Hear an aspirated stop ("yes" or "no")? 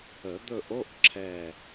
yes